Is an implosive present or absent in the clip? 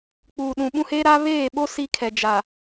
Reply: present